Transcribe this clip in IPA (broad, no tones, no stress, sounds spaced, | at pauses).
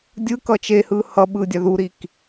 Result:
dʲ ɯ k ʌ t͡ʃ e h ɯ h ʌ ɓ ɯ dʲ a ð u ɾ i k